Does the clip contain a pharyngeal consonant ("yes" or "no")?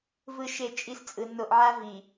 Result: yes